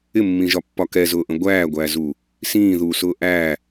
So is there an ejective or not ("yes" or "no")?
no